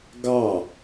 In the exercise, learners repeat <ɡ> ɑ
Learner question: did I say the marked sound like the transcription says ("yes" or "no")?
yes